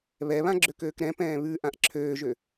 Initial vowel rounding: unrounded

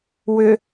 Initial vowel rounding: rounded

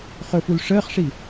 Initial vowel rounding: rounded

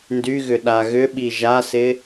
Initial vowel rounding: rounded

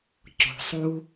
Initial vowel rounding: rounded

